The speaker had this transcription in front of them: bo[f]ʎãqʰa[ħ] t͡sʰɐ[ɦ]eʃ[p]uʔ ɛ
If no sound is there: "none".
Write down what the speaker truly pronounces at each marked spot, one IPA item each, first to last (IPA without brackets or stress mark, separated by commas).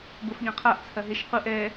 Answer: f, ʔ, ɦ, q